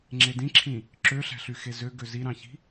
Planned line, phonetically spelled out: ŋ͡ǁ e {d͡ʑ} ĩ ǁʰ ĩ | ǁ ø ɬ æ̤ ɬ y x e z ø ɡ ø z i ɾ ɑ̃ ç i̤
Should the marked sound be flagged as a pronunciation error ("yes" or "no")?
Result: yes